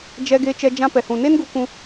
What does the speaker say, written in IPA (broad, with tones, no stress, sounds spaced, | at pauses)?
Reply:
d͡ʒ ɛ˧ ɡ e˧ t͡ʃ ɛ˧ d͡ʒ ã˧ p ɛ˨ h ũ˨ n e˦ n ɡ u˧ k ũ˧